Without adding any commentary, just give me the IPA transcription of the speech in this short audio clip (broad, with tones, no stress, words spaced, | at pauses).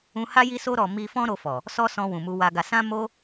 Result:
ũ˧ha˦ ji˧so˧ɾɔ˨ mi˧fɔ̃˦ ɾo˧fɔ˨ | sɔ˦sɔ̃˧ wũ˨mu˧wa˧ɡa˧ sã˦mo˦